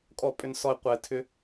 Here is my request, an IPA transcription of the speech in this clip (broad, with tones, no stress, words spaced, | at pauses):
kʼɔ˨pʼʏ˨nsɔ˨ɪ̯ qʷɛ˨tʰʏ˦